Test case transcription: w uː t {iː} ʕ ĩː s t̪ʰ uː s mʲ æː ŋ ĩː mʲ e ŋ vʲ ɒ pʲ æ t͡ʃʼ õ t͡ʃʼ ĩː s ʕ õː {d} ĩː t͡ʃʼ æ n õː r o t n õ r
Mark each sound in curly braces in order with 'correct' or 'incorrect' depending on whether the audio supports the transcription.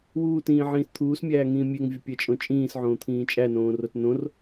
incorrect: ĩː, incorrect: t̪ʰ

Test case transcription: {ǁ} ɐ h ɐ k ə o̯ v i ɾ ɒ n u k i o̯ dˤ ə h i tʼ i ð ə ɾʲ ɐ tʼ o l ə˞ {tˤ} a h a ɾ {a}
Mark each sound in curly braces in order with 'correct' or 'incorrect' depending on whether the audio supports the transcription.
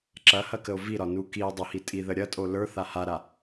correct, incorrect: θ, correct

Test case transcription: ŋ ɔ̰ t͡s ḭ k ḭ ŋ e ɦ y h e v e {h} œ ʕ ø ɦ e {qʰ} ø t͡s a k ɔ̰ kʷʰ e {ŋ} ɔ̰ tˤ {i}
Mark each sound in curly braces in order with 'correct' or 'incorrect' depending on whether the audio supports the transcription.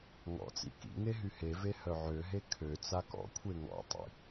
correct, incorrect: kʰ, correct, incorrect: ḭ

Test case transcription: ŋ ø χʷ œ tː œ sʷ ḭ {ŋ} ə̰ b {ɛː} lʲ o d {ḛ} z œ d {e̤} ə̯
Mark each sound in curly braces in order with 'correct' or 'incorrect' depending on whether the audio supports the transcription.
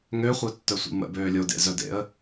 incorrect: m, incorrect: øː, correct, incorrect: ḛ

